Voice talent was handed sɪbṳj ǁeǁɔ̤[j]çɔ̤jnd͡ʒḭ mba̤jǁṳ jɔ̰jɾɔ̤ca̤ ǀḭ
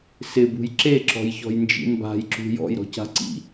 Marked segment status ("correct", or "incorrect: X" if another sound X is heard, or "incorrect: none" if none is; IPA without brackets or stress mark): correct